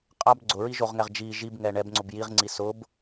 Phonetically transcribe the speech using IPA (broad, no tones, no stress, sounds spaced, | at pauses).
qʼ a b ɡ͡ǀ ʊ ɹ i ʒ o ʁ ŋ ɛ ʁ d͡ʒ i ʒ i b ŋ ɛ ɳ ɛ b ŋ͡ǀ ʊ b j i ʁ ŋ͡ǀ i s ʊ b